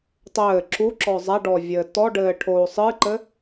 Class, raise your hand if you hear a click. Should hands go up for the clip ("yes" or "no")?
yes